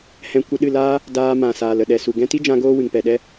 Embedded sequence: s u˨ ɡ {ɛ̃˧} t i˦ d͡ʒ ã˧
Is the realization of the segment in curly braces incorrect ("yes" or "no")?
no